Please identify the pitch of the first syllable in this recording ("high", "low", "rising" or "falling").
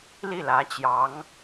falling